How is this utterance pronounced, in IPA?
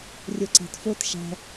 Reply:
rʲ o ǀ æ̤ t f o t ʃ æ̤

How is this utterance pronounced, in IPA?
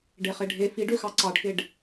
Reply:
ɖ e χ e ɖʱ e f i ɖ ø x ɑ ǀ ɑ ɖ k e ɖ

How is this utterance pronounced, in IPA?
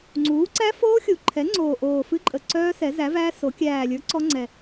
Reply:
ŋ͡ǀ uː˩˥ ǀ æ˦˥ f oː˦˥ xʲ u˨˩ ǃʰ ɛ˩˥ ŋ͡ǀ oː˨˩ ʔ oː˨˩ f ɨ˦˥ ǃʼ ə˨˩ ǀ œː˦˥ s ɛ˩˥ z æ˩˥ v æː˦˥ s o˩˥ kʲ æː˨˩ lʲ ə˞˩˥ ǀ ɔ˦˥ ŋ͡ǀ ɛ˨˩

